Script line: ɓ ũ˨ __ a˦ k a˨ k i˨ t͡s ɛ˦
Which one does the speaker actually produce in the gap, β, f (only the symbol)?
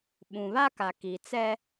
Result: β